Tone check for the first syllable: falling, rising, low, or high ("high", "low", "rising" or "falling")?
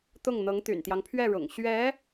falling